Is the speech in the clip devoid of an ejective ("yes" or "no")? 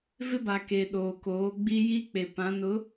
yes